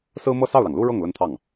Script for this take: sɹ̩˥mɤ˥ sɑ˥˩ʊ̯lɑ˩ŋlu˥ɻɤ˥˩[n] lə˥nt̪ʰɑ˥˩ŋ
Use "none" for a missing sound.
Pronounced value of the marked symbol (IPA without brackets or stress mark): ŋ